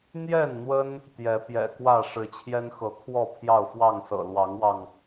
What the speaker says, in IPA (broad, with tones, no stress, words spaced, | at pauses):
n̪jɛ˥˨nn̪wə˦n | t̪jɛ˨˦pjɛ̰˨˩kwä˥˨ ʂɻ̩˨˦t͡ɕʰjɛ˦nxɤ˨˦kʰwɔ˥˨ pʰjɑ˥˨ʊ̯fwɑ˥˨ŋsɤ̰˨˩ lwɑ˨˦ŋwɑ˧ŋ